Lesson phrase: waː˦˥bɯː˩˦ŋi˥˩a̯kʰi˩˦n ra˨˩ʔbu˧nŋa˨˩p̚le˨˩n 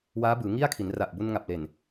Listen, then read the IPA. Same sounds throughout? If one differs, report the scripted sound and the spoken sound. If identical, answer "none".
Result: none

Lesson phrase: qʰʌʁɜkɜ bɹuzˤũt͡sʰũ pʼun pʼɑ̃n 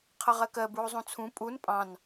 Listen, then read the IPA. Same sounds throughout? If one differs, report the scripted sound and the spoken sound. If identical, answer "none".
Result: none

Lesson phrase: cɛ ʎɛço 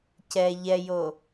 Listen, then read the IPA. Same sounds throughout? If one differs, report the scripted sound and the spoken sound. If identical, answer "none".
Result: ç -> j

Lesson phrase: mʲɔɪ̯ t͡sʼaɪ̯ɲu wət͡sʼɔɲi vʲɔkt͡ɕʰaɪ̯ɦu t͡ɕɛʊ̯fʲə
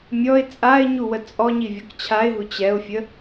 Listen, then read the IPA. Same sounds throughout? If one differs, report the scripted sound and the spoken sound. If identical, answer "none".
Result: none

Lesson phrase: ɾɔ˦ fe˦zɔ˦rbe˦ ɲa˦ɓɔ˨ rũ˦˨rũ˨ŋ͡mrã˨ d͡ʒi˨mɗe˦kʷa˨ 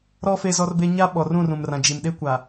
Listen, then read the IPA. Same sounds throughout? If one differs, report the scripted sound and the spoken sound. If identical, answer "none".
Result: ŋ͡m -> m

